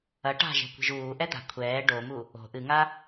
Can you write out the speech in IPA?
ɐ ʈ a̤ ʒ ɛ̤ kʷ i̤ ʒ uː ʔ ɛ d̪ a̤ kʷʰ ɛː ɖ o m u | o̤ ʔ ɨ ŋ a

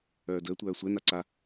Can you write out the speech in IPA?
œː d əː tʷ œː sʷ ɛ n a ǀ a

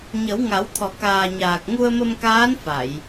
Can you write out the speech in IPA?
ɲ ə˨˩˦ w ŋ a˨˩˦ w t̪ʰ ɔ˨˩ k aː˨˩ ɲ aː˨˩ k̚ ŋ u˧ ə̯ m ə˧ m k aː˧˥ n f a˨˩˨ j

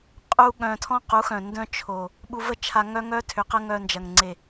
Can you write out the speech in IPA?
qʼ u˦ ɠ œ̃˧ tʰ ɔ̃˦ q u˨˦ x œ̃˨ n d œ̃˦ t͡ʃʰ o˨ | ɓ u˧ v ə˦ t͡ʃʰ a˧ ŋ œ˦ ŋ œ˦ tʰ ʏ˨ q ə˦ ŋ œ˧ n d͡ʒ ɐ˨ ŋ ŋ͡ǀ e˨

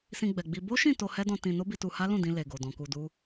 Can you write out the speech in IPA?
s ĩ˧ ɡ͡b ɛ˨ ɡ͡b i˧ b o˦ ʃ ĩ˦˨ t o˧ h ɛ˦ d ɔ̃˧ t ĩ˧ n o˦ b i˧ t u˧ h a˦ l ũ˦˨ d ĩ˧ l e˨ ɡ o˨ d ɔ̃˨ k u˧ d u˦

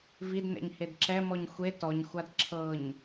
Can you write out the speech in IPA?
v i d n ɛ̰ ɲ h e d ǁ ɛ m ɔ ɲ xʷ e t ɔ ɲ xʷ a d ǁʰ ɤ ɲ

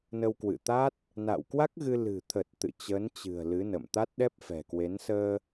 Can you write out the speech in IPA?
n ə˧ w k w ɨ̰˧˨ t̪ a˦˥ t̚ | n a̰ː˧˨ w k w a˦˥ k̚ ɣ ɨ˧ l ɨ̤˨˩ t̪ʰ ə˨˩ t̚ t̪ ɨ̰˧˨ t͡ɕ əː˨˦ n t͡ɕ ɨ̤˨˩ ə̯ l ɨ˨˦ n ə̰˧˨ m t̪ a˦˥ t̚ ɗ ɛ˦˥ p̚ f ɛ̤˨˩ k w e˨˦ n s əː˧

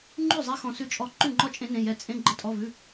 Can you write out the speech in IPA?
ŋ͡ǃ ʉ˥˩ zˤ e˧˥ x ɔ̃˧˥ s ʉ˥˩ t͡ʃʼ ɔ˥˩ ǃ ʉ˥˩ ŋ͡ǃ ɔ˥˩ t͡ʃʼ ẽ˧˥ n ẽ˧˥˧ j ɛ˥˩ t͡sʼ ẽ˧˥˧ ɡ͡ǃ ə˥˩ tʼ ɔ˧˥˧ v ʉ˧˥˧

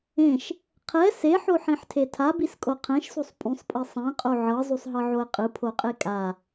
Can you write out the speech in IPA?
ẽ ʃ | qʰ ɛ s e ħ o ħ ĩ ħ tʰ e tʰ a b i s kʼ o qʰ ɛ̃ ʃ s u sˤ pʼ ũ sˤ pʼ i sˤ ɛ̃ qʼ o ʕ ɤ zˤ u sˤ ɦ ɤ ʕ o ə̯ qʼ ɯ pʰ o qʼ e kʼ a

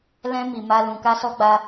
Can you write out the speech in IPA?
l ɛ̃˦ m i˧ m a˦ l ũ˧ k a˦ s ɔ˦ ɡ͡b a˦

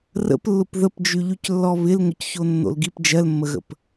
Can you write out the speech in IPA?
r ə̰ p lː ʊ p ð ə p d͡ʒ y ʎ y c lː ɔ β ɪ l ŋ ʊ c ç o nː o̰ l ɡ i p d͡ʒ ɜ l mː ə ɣ ə̰ p

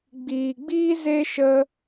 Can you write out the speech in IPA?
ɡ͡b iː˨ ɡ͡b iː˦ z e˦ ʃ ə˦

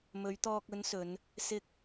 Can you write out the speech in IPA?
m ɵ˨˧ ɥ t̪ ɔː˧ k̚ ɵ˨˧ n s ɵ˨˧ n | s ɪ˨ k̚

